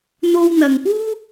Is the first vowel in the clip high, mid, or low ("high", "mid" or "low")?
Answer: mid